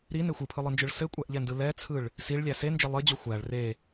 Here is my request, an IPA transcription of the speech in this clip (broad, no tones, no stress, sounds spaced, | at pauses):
ɾ i n e xʷ ɯ pʰ ɯ lˠ ɯ n d͡ʒ ɯ ɭ s ɘ kʷʼ æ ʔ ʎ ɛ n d ɯ l ɛ t͡sʰ ɯ ɭ | s i ɭ lʲ æ s e n d͡ʒ e lˠ ɘ d͡ʑ o xʷ æ ɭ r e